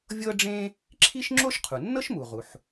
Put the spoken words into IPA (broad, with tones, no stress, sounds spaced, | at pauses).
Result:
vʲ ɤ˥ ɖ͡ʐ ẽ˥ | ǁʰ i˥ ʃ ŋ͡ǁ o˥ ʃ qʰ u˩ nː ɤ˥ ʃ m u˩ ʁ u˩ ħ